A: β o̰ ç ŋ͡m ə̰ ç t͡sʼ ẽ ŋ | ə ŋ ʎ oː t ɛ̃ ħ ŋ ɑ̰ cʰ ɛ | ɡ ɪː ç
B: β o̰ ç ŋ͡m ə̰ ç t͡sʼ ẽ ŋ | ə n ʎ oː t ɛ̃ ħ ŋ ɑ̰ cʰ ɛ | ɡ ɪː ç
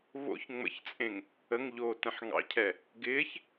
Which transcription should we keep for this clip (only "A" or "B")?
A